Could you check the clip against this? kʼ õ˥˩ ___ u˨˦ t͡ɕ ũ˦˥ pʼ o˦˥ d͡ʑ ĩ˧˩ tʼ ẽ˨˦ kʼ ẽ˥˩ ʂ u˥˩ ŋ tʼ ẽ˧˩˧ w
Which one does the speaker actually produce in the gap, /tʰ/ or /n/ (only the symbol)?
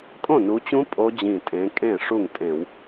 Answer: n